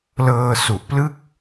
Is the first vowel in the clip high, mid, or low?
mid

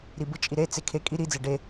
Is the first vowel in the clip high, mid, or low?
high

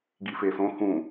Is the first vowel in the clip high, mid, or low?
high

